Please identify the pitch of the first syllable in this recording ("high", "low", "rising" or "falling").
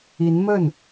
rising